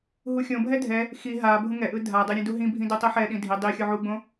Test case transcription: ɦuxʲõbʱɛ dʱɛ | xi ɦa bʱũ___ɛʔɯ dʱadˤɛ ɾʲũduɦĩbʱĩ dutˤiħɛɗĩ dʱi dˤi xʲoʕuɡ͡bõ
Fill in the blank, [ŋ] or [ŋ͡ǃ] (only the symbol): ŋ